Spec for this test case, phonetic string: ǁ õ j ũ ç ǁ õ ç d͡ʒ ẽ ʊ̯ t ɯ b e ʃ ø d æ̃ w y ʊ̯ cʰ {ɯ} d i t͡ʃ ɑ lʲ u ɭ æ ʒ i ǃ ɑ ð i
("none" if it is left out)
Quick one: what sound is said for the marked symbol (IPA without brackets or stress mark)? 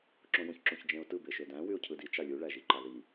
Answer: ɯ